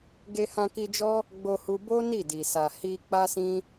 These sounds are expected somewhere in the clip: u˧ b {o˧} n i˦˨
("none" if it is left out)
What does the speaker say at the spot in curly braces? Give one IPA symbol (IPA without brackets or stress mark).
o˦